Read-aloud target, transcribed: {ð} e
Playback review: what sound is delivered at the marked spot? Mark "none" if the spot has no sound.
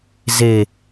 z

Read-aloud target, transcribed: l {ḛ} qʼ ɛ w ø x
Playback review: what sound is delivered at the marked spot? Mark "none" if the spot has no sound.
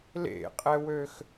ḛ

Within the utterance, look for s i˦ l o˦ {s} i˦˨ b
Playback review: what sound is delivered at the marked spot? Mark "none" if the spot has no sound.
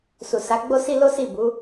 s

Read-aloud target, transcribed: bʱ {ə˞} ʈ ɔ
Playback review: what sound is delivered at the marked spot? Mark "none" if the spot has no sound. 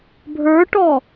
ə˞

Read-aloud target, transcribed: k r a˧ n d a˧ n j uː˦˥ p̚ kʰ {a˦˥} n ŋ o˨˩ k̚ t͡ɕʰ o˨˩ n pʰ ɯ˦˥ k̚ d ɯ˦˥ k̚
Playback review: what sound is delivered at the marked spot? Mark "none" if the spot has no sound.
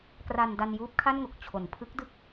a˥˩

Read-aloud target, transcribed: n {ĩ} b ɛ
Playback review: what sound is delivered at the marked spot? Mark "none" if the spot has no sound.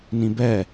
ĩ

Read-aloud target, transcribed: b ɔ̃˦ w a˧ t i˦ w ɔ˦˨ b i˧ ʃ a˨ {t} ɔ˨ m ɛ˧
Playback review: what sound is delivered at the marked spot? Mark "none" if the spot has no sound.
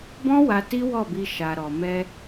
ɾ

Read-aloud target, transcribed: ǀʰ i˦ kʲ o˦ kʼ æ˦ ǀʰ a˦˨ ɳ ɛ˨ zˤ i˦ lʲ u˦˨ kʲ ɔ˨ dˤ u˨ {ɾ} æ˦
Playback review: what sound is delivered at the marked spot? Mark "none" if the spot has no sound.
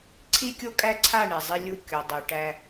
ʈ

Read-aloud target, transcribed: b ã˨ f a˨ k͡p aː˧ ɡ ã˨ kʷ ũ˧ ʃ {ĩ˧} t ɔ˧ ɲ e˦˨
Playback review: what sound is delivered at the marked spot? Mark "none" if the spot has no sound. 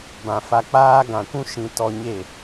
ĩ˧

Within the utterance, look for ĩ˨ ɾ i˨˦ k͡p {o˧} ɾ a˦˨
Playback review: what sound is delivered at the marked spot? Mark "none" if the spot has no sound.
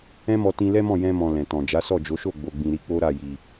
o˦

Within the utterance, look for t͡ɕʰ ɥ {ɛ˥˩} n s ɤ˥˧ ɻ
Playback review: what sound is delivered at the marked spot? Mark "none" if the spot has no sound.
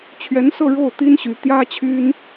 ɛ˧˥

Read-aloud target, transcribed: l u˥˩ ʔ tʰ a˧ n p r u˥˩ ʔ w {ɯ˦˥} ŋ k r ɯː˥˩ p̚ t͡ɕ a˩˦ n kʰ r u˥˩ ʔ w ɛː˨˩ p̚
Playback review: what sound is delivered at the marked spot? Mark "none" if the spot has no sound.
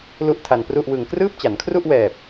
ɯ˧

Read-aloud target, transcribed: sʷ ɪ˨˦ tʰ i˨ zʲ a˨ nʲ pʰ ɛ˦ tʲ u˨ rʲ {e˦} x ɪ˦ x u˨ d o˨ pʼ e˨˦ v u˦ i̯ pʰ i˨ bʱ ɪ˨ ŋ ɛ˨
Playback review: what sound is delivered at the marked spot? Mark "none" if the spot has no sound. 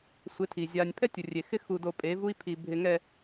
e˨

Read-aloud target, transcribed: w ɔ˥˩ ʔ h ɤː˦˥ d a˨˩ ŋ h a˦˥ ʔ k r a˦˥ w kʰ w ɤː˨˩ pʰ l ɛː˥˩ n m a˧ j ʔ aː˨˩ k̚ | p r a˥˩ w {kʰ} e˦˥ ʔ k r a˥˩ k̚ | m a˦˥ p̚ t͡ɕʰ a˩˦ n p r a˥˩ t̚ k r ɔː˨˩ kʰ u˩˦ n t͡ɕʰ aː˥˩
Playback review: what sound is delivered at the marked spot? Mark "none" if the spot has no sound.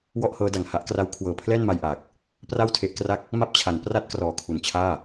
tʰ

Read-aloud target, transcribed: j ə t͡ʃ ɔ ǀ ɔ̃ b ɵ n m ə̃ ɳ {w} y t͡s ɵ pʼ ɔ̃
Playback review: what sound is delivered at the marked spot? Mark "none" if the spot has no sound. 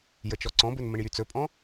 j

